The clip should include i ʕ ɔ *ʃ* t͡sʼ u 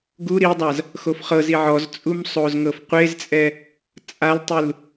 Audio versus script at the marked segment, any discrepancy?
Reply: yes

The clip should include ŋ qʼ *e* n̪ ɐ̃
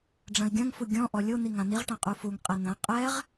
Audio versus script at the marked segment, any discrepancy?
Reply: yes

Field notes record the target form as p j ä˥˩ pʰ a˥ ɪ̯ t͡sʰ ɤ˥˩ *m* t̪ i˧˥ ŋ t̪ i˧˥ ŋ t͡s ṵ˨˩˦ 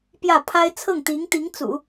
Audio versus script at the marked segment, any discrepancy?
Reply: yes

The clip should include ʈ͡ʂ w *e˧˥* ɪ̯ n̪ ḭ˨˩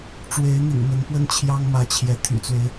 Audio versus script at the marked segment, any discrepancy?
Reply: no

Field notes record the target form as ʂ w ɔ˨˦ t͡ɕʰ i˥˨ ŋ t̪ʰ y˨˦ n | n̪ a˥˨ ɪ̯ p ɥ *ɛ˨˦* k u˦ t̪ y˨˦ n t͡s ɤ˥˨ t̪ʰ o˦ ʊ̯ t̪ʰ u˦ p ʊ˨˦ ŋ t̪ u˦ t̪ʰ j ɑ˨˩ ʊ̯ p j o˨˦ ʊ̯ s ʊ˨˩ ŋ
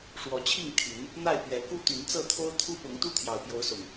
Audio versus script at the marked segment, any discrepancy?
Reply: no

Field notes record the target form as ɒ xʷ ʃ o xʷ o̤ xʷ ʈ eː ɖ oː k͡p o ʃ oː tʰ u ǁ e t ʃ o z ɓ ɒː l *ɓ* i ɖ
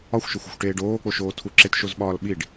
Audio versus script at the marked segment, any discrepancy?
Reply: no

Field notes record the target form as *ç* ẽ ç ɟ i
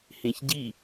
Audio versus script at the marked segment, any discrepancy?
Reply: yes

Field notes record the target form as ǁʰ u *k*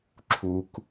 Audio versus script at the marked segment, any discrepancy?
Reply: no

